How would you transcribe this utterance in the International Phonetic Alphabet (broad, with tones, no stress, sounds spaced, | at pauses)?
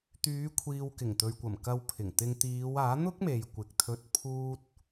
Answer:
t̪ yː˨˧ kʷʰ iː˨ w k ɪ˨˩ ŋ t̪ ɵ˨ ɥ kʷ ɐ˨˩ m k ɐ˧ w pʰ ɪ˨˩ ŋ t̪ ɪ˧ ŋ t̪ iː˨˧ w aː˨˥ n̪ ʊ˥ k̚ m e˨ j kʷ ɪ˨ k̚ t̪ʰ ɵ˧ t̚ pʰ uː˥ t̚